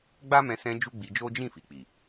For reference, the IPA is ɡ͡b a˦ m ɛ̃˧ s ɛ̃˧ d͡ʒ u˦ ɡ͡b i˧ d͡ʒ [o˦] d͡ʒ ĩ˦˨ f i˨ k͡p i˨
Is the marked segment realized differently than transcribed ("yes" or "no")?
no